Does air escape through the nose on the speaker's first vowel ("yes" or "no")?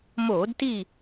no